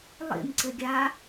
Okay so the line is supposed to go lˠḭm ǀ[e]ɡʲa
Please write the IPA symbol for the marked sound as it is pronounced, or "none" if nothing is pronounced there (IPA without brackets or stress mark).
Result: ɘ